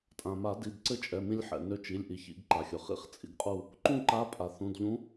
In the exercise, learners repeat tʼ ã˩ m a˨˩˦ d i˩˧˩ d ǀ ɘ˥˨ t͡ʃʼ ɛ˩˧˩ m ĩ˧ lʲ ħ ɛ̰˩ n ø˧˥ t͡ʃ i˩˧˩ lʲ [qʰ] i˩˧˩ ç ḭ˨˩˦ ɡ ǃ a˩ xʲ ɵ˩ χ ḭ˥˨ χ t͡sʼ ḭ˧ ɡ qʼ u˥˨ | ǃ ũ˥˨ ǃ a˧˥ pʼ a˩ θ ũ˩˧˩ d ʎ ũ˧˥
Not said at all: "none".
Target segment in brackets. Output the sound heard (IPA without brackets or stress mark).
ʔ